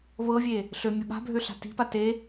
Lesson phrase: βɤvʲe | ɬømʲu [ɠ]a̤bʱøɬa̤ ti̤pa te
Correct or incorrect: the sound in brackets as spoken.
correct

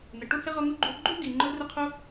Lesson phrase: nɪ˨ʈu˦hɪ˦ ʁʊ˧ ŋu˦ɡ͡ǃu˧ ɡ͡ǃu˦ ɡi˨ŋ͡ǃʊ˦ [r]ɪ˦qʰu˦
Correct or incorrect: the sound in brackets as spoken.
correct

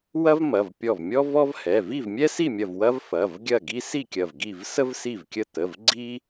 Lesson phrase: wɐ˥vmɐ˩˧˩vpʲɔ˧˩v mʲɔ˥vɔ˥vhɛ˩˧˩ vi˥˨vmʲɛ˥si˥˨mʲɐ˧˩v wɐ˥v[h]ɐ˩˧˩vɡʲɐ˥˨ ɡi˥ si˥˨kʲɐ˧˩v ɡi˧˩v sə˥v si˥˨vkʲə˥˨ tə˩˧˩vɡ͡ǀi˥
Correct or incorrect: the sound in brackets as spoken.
incorrect: f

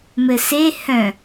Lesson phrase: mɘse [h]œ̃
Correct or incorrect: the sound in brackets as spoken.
correct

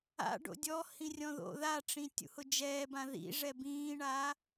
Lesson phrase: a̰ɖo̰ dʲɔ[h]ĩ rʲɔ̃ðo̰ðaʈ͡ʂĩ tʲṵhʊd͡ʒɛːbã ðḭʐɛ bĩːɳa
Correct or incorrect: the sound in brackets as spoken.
correct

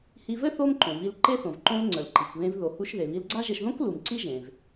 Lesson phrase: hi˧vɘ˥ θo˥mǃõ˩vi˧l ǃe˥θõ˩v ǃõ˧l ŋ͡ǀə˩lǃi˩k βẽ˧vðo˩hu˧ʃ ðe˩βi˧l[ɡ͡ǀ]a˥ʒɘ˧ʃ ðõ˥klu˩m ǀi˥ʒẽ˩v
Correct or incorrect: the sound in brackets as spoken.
correct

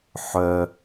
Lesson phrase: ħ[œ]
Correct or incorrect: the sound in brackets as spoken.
correct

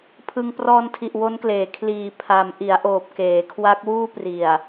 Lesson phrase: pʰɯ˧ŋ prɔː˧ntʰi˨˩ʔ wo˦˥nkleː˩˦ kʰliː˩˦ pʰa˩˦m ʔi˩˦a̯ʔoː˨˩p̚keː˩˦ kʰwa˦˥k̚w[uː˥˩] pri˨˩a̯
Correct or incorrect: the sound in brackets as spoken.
correct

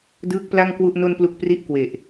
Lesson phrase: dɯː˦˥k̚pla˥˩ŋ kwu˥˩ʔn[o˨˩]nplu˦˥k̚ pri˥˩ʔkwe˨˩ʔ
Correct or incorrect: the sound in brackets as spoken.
incorrect: o˥˩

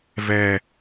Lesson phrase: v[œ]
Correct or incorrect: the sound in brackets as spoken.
incorrect: ɛ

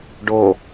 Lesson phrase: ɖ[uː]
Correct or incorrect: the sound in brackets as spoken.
incorrect: oː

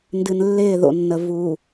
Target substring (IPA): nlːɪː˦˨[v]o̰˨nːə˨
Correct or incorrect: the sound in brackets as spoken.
incorrect: ð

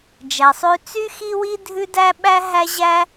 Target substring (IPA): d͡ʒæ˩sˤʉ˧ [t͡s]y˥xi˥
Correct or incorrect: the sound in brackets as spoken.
correct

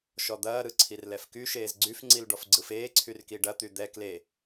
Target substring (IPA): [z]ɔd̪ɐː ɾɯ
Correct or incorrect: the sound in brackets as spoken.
incorrect: ʃ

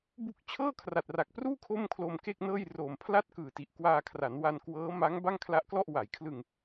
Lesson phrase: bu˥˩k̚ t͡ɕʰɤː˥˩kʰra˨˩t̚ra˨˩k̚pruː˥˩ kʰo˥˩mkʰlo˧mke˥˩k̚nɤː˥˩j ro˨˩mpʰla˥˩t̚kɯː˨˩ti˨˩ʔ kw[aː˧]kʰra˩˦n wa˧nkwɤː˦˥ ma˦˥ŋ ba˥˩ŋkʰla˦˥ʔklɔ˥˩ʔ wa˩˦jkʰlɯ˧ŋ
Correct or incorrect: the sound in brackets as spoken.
correct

